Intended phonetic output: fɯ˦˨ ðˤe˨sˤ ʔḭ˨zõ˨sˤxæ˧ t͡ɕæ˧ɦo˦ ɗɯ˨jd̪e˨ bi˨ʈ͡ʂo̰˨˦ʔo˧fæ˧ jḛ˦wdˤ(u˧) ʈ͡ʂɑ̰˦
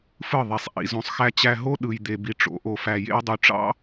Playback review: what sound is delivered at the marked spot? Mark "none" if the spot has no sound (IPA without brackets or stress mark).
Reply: y˧